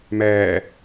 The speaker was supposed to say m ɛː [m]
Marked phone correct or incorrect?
incorrect: none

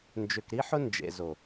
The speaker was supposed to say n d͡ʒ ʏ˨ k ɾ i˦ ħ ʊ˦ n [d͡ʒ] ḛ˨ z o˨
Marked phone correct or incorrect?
correct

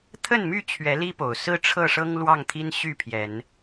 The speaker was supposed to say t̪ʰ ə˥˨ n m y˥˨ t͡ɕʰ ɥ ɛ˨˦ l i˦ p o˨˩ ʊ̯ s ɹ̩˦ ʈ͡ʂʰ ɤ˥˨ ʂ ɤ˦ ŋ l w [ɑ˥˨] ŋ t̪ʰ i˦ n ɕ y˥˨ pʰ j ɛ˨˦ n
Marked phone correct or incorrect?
correct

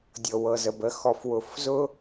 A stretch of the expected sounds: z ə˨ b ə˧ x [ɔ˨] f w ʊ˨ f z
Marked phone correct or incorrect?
correct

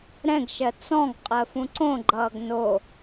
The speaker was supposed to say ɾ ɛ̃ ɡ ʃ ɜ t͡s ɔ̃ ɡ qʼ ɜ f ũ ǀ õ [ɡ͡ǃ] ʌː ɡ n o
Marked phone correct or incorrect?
correct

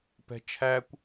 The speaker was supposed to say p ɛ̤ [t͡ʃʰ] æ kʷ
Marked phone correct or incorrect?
correct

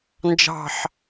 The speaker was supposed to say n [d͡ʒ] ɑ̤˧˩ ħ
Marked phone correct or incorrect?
correct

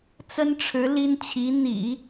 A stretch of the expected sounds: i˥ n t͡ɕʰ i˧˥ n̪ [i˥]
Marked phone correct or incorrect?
incorrect: ḭ˨˩˦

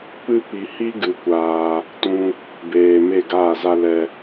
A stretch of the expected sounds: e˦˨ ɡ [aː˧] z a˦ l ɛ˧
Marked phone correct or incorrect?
incorrect: aː˦˨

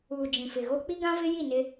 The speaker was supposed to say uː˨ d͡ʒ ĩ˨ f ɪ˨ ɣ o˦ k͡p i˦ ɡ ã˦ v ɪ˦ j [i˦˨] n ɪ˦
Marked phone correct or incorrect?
correct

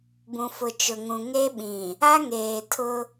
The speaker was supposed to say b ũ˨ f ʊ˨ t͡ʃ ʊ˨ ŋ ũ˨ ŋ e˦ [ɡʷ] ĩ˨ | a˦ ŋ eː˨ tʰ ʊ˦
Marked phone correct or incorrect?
incorrect: ɓ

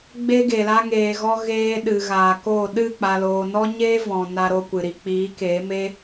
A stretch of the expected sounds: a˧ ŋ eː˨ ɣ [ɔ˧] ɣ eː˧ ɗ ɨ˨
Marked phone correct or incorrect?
correct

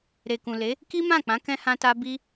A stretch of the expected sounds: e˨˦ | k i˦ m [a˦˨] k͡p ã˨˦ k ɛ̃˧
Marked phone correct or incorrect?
incorrect: ã˦˨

